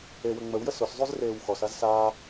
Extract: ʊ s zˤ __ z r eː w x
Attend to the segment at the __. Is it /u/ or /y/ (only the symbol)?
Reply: y